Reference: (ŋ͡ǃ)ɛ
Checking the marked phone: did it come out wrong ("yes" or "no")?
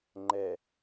no